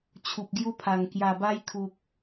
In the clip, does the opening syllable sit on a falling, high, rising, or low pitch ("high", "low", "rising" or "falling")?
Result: low